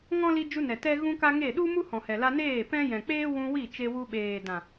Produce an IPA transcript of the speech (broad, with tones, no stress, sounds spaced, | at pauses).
ŋ ɔ̃˦ l i˧ d͡ʒ u˧ n ɛ˨ t ɛ˦ ɣ ũ˦ k a˦ ŋ e˦˨ ɗ u˦ m u˦ h ɔ̃˨ h ɛ˨ l a˧ n eː˦˨ p ɛ̃˦ j ɛ̃˨ k͡p eː˦ w ũ˧ w i˦˨ t͡ʃ e˧ w u˧ ɓ eː˨ d ã˨